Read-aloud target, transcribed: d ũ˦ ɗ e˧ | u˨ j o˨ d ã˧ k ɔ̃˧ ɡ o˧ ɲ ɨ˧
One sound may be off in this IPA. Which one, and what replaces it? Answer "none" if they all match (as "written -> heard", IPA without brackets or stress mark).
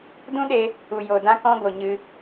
none